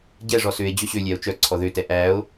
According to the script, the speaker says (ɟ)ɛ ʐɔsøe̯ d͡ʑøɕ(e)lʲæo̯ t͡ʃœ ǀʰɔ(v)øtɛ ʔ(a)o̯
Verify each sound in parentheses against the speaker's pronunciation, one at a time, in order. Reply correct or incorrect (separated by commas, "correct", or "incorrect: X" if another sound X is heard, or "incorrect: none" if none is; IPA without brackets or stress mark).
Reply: correct, incorrect: ø, incorrect: ð, incorrect: æ